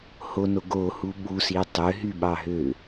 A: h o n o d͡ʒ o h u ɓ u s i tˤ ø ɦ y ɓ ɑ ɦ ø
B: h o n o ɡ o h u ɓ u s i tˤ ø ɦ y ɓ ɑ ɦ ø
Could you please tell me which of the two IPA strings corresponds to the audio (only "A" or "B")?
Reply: B